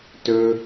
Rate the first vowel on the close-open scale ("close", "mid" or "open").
mid